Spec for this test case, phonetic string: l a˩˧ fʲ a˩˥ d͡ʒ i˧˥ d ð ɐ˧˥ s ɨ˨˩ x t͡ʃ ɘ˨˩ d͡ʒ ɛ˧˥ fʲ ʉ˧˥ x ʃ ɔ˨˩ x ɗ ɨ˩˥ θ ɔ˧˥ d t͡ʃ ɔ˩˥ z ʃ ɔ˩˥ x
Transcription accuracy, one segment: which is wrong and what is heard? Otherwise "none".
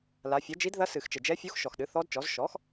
ʉ˧˥ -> u˧˥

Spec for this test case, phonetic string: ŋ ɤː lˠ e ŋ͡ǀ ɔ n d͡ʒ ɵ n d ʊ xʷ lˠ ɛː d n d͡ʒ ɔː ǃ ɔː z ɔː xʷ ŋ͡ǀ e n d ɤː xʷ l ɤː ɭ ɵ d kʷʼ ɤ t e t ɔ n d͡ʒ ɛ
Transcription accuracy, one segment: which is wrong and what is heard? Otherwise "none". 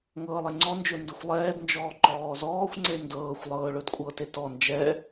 l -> lˠ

